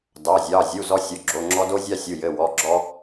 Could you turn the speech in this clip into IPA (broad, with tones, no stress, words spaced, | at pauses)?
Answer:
dɑ˩˧˩zʲɑ˩˧˩ zʲu˩˧˩ zɔ˦sʲo˩˧˩ɡ͡ǁo˩˧˩ŋ͡ǁɔ˦ do˦zʲɑ˦sʲu˩˧˩ jɘ˩˧˩ wɔ˩˧˩ɡ͡ǁɔ˦